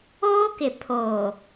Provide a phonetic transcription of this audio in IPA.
oː˦ k ɪ˨ pʰ oː˨

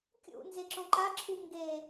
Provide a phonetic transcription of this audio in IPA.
kʲ ṵ n z e ǁ õ ǃ a ǁʰ u ŋ ɡ e

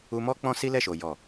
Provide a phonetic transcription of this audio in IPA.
u˧ m ɔ˦ k͡p ɔ̃˦ s i˦ l ɛ˦˨ ʃ o˨ j ɔ˨

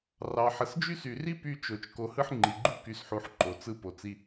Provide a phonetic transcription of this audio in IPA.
r ɑ˨ ħ ə˨ s d͡ʒ y˦ s y˨ r i˦ p y˧ t͡ʃ o˨ t͡ʃ k o˧ h ɯ˦ ħ ŋ͡ǃ i˨ ɡ͡ǃ u˦ k y˧ s ħ u˧ ħ ǃ o˨ t͡s ɯ˧ p o˨ t͡s i˧

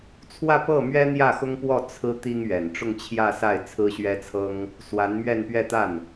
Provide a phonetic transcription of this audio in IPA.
t͡sʰ w ä˥˧ p ɤ˥˩ m ɥ ɛ˥ n̪ j ä˥˩ x ʊ˥ ŋ p w ɔ˥˩ t͡sʰ ɹ̩˥ t̪ i˥ ŋ ɥ ɛ˨˩ n ʈ͡ʂ ʊ˥˧ ŋ t͡ɕʰ j ä˥˧ s a˥˩ ɪ̯ t͡sʰ ɹ̩˥ ɕ ɥ ɛ˥ t͡sʰ ɤ˥ ŋ | s w a˧˥ n m ɥ ɛ˥˧ n p ɥ ɛ˥˧ t̪ a˥˩ n

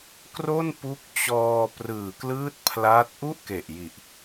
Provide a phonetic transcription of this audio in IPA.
k r o˥˩ n p u˦˥ k̚ t͡ɕ ɔː˧ p r ɯː˨˩ k l ɯː˦˥ t̚ pʰ l aː˦˥ t̚ ʔ u˥˩ ʔ k e˨˩ ʔ j i˨˩ ʔ

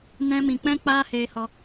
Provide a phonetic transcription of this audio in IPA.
n ɛ̃˧ m ĩ˨ k͡p ɛ̃˦ k͡p aː˦ h eː˧ h ɔ˧

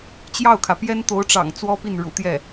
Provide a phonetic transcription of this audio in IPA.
t͡ɕ j ɑ˥˩ ʊ̯ kʰ ä˩ p j ɛ˥ n t̪ o˧˥ ʊ̯ ʈ͡ʂ ɑ̰˨˩ ŋ t͡s w ɔ˥ p i˥˩ n ɻ ṵ˨˩ t̪ j ɛ˥˩

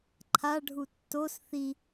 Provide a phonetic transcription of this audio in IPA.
ǃʰ a ɖʱ u tː o s θ i

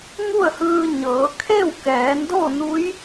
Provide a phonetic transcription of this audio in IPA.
ŋ u˥˨ ə̯ h ɯː˧ ɲ ɤː˩˧ kʰ e˥˨ w k ɛː˩˧ n d o˥˨ n u˧˥ j

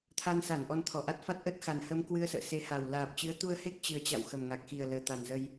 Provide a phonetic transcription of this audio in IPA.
t̪ʰ a˧ n s a˧˩ n ʔ ɔ˧ n t̪ʰ ɔ˧˩ ʔ a˦˥ t̚ f a˦˥ t̚ ʔ ə˦˥ t̚ x a˨˩ n h ə˧ m k w ɨ˧ ə̯ s ə̰ː˧˨ s e˨˦ h a˨˩ w l aː˨˩ p̚ t͡ɕ ɨ˨˦ ə̯ t̪ u˧ ə̯ h e˦˥ k̚ t͡ɕ ɨ˨˩ ə̯ t͡ɕ a̰˧˨ w x ə˨˩ m ŋ a˨˩ k̚ x i˨˩ ə̯ l əː˨˩ t̪ a˨˩ n z ə˧ j

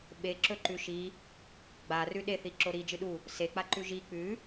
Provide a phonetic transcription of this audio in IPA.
ɓ e ǁ ɵ ǃ ʉ ʃ i | ɡ͡b a r ʉ ɗ e θ i ǁ o ɾ i d͡ʒ ɨ ɗ u | s e k͡p a ǃ ʉ ʒ i k͡p ʉ

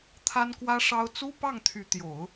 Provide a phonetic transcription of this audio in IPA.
t̪ʰ a˥ n k w ä˥ ʂ ɑ˥ ʊ̯ t͡s u˥ p ɑ˥˩ ŋ t̪ʰ y˧˥ t̪ j o˨˩˦ ʊ̯

